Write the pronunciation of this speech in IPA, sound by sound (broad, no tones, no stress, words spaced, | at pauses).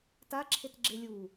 taǁʰetɡ͡ǁe lʲu